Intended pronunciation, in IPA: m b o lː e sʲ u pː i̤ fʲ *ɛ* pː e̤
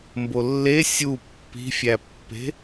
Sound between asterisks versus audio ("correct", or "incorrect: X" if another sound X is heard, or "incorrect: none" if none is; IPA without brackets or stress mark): incorrect: æ